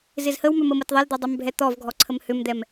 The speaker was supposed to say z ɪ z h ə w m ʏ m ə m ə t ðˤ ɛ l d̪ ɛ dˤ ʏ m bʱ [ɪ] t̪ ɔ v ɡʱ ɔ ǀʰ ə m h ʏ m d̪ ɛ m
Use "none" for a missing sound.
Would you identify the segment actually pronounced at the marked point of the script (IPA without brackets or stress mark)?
ɛ